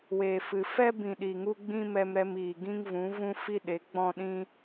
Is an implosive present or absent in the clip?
present